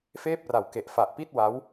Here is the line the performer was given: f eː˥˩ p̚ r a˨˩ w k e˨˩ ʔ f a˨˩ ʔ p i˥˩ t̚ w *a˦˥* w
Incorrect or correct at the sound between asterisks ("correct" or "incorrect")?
correct